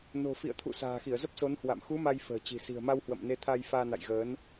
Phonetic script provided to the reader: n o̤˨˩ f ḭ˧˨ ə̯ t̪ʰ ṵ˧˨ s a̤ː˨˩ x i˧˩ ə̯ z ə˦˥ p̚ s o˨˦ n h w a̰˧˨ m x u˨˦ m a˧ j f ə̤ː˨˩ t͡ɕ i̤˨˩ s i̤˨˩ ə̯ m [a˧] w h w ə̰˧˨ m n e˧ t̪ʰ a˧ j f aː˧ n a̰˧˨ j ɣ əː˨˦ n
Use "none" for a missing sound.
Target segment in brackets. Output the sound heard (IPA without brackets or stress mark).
a˧